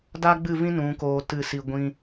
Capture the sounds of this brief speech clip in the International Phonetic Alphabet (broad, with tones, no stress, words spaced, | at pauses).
da˦ɡ͡bɨ˦˨vĩ˦ nũ˨˦koː˧ tɨ˦˨si˧ɡʷĩ˦